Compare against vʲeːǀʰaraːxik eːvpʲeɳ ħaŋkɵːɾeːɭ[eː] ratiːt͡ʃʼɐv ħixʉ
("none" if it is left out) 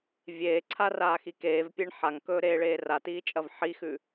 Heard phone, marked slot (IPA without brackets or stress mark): eː